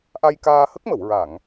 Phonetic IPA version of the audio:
ʔ a˧ j k aː˧ h ə˦˥ k̚ m ə˨˩˨ w ɹ a˨˩˨ ŋ

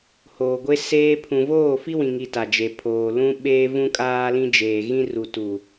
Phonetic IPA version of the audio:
h oː˨ ɡʷ e˦ s eː˦ pʰ ũ˨ v oː˦˨ f i˦ w ĩ˨ ŋ i˨ t a˨ d͡ʒ e˨ pʰ oː˨ l ũ˦ ɓ eː˦ v ũ˦ kʼ aː˦ l ĩ˦ d͡ʒ eː˨ ɣ ĩ˦ r u˨ t u˨

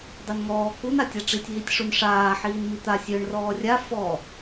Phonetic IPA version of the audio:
dˤ ø n ŋ ɔː k u n a tʲ a ʈ͡ʂ i tʲ ɦ i tʲ ʂ u n ʂ aː ħ iː n m i t̪ a sʲ ø ɳ r ɔː rʲ a f ɔ

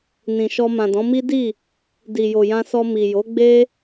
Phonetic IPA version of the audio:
n ĩ˨ ʃ ɔ˧ m ã˨ d ɔ̃˨˦ m i˦ d i˦˨ | d i˨ j o˨ j ã˧ s ɔ˧ m i˨ j o˨˦ ɡ͡b e˦

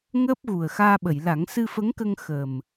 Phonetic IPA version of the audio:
ŋ əː˦˥ p̚ ɣ u˨˩ ə̯ x aː˧ ɓ ə˨˩˨ j l a˨˩˦ ŋ s ɨ˧ f ə˧˥ ŋ k ə˧ ŋ x ə˨˩ m

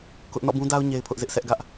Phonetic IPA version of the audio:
k ʊ˦ ʔ n ɔ̰˦˨ b ũ˦ d a˦ ʊ̯ ɲ e˦ ɪ̯ pʰ ʊ˦ ʔ z ɪ˦ ʔ sʰ ɛ˦ ʔ ɡ ä˦ ʔ

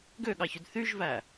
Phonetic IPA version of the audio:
ɡ ø ɠ ɑ ç y d θ y ʒ v æ

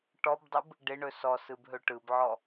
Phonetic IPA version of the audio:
ʈ ɔ b dˤ ɯ b | ɖ ɪ ɳ ɵ s ɔ s ɯ b ɦ ɵ ʈ ɯ b ʕ ɔ

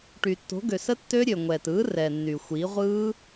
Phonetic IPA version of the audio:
ʈ y˩ tː o̤˩˥ ɡ ø˩ s ə˦˥ tː ø˦˥ ɾʲ ø˩ ŋʷ ɛː˩ t ɯː˩˥ r ɛː˩ nː y˩ xʷ iː˩˥ ʁʷ ɯː˦˥

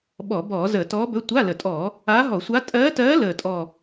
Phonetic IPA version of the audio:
ɓ ɔ˧˩˧ b ɔː˧˩˧ z əː˧˩˧ t ɔː˧˥ b ɵ˧˥˧ tʷ a˧˥˧ l ə˨˩ tʼ ɔː˧˩˧ | aː˧˥ ɦ ɔ˧˩˧ sʷ a˧˥ tʼ ɜː˧˥ t ɜː˧˥ l əː˨˩ tʼ ɔ˨˩

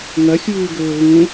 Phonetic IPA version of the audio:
ŋ ɐ xʲ uː ɡ ɵː ɣ ũ

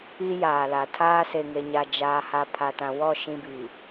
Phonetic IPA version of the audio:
i˦ j aː˨ l a˨ tʰ aː˦ s e˨ ŋ e˨ ɲ a˨ d͡ʒ aː˨ h a˨ pʰ a˨ t ã˨ w ɔ˦˨ ʃ ĩ˦ b i˨

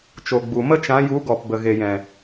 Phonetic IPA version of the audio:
t͡ʃ o˨ ɡ͡b u˨ m ə˦ t͡ʃ ã˨˦ j u˨˦ ɡ ɔ˨ p b ə˨ ɣ e˨ j ɛ̃˨

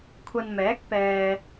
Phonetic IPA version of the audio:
kʷʰ ɐ˧ n m ɛː˨˥ k̚ p ɛː˧

